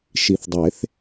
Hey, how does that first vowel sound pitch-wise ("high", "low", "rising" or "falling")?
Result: low